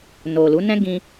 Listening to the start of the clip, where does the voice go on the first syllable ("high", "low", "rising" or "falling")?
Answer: low